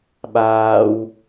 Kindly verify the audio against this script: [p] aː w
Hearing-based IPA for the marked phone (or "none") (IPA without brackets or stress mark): ɓ